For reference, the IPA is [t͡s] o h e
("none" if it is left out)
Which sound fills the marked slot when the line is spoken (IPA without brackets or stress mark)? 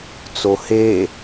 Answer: t͡s